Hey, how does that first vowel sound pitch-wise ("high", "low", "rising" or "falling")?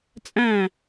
falling